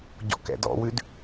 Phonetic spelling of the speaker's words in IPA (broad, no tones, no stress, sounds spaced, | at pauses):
ɟ ɔ̰ k ɛ̰ d ɔ̰ w ʉ d